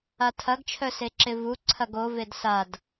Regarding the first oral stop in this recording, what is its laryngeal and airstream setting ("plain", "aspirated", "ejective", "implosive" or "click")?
aspirated